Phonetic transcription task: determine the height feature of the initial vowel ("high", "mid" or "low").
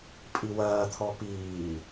high